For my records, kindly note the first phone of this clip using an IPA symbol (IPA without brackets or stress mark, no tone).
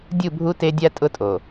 dʲ